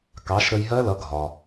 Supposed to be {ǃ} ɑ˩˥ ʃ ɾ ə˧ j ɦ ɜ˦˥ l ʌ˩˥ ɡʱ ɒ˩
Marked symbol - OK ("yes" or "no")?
no